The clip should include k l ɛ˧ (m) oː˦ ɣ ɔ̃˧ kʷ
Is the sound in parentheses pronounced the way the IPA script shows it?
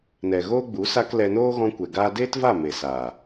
no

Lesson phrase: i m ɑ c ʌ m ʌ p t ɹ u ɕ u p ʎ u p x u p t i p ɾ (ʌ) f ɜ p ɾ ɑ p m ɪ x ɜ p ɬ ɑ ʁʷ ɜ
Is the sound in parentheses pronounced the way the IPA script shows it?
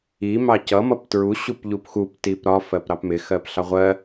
no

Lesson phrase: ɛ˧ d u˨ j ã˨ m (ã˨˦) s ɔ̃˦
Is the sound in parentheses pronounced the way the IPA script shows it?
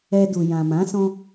yes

